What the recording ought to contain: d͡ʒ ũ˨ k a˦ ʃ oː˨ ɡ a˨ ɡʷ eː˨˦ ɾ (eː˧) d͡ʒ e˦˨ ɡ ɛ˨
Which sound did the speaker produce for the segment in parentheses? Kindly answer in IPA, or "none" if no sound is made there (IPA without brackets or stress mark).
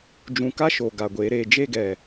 eː˧